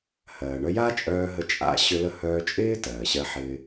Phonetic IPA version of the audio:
hɜː˩ɳœ˧ja˥t͡ʃʼœː˧ ɦə˧t͡ʃʼa̰˥ ɕʏ˧lə˧ hœː˧t͡ʃʼɪː˥ tɜː˩ɕɜ˧ħɪː˧

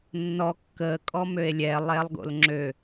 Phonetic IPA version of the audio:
nːɔ kːəːkʼɔ møe̯lʲɛ lˠɛlˠɡo̰lŋ͡ǁø

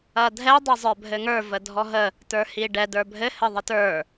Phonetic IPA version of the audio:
ɐdʱɛ dˤəzˤə˞bʱɘŋə˞ vədʱɔɦə | tə˞hiɖɛ də˞bʱɘ hɘðˤətə˞

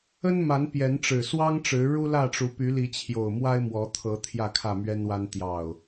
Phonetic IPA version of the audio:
ə˦nma˨˦npjɛ˨˦n ʈ͡ʂɻ̩˨˩swɑ˦ŋʈ͡ʂɻ̩˨˦ ɻu˦lä˥˨ʈ͡ʂu˨˦ py˨˦li˨˦t͡ɕʰjo˨˩ʊ̯mwa˦ɪ̯ mwɔ˨˦t̪ʰɤ˨˦ t̪ʰjä˥˨kʰä˥˨mɥɛ˦nwa˦n t̪jɑ˨˩ʊ̯

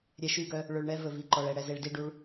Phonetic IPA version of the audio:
ɾʲɛ˨ʃy˦˨ɡœ˦ | ɭɵ˨ɭɳɛ˦ vɵ˨vi˨ǃɔ˨ɭɛ˨ ɽɛ˨ze˨ɭdi˦˨ɖu˦ɭ

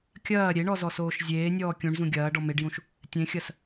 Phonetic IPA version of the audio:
kʲɐː ɾʲeɳɔzɔsoːʃ zʲeːnʲɔː kʲũɳzũ ɡʲɐːɖɔ meɖjũʃ | tʲẽxʲɐs

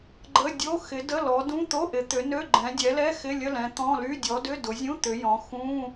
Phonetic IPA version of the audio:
ɡ͡ǃə˧˥˧dʲo˧˥˧ xɪ˨˦də˧˥˧lɔ˨˦dũ˧˥˧ t̪o˧˥˧ʔɪ˨˦t̪ʏ˨˦ nø˧˥˧ɡ͡ǃɛ̃˨˦ dʲɛ˨˦lɛ˧˥˧ xɪ˧˥˧lʲə˧˥˧lɛ̃˨˦ t̪ɔ̃˧˥˧ly˧˥˧ dʲɔ˨˦dʏ˧˥˧ dʊ˨˦zʲũ˧˥˧ t̪ʏ˨˦jɔ̃˨˦ xũ˧˥˧

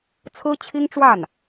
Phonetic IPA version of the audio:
t͡sʰɹ̩˥t͡ɕʰi˥ŋʈ͡ʂwa˥˩n

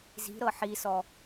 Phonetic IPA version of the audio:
zi̤ɾɤ ħisɔ

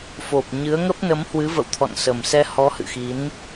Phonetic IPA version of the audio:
fo˨˩p̚ ɲɨ˨˦ə̯ŋə˦˥p̚ nə˨˦mhwɨ˨˦və̰˧˨wt̪ʰɔ̰˧˨n sə˨˩msɛ˧ hɔ˨˦hɨ̰˧˨xi˨˦n

